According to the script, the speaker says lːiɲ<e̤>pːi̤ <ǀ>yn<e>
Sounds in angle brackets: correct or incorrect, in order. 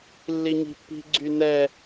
incorrect: i̤, incorrect: ɡ͡ǀ, incorrect: ɛ

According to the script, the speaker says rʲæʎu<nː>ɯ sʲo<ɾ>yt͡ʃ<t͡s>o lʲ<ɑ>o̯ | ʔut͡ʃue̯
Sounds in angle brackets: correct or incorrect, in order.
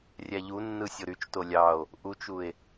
correct, correct, incorrect: t, correct

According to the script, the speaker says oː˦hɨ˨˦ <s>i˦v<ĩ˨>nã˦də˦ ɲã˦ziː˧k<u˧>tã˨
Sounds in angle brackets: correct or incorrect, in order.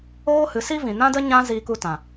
correct, correct, correct

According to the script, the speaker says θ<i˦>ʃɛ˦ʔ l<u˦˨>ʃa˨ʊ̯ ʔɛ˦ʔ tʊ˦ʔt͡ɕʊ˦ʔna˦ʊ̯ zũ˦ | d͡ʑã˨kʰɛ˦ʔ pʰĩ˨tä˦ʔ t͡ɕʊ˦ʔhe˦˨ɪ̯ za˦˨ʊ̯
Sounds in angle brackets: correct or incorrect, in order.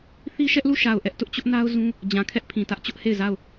correct, correct

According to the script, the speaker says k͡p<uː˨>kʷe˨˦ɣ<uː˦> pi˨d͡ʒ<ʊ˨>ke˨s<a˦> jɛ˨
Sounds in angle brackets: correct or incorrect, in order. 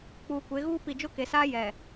correct, correct, incorrect: ʊ˦, incorrect: aː˦

